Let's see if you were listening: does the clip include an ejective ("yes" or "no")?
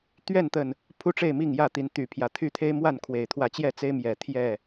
no